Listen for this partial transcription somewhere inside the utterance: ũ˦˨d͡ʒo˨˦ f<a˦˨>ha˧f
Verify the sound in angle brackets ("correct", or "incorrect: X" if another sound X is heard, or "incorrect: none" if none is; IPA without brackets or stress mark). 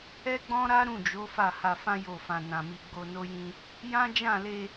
correct